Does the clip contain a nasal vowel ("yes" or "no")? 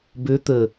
no